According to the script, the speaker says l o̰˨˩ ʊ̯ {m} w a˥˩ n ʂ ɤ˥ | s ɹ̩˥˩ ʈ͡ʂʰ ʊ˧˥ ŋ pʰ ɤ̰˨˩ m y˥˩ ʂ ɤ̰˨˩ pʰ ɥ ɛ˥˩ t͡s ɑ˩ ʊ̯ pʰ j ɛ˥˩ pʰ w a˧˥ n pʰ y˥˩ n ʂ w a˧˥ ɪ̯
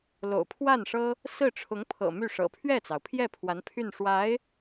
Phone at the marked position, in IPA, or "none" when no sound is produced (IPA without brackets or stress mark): pʰ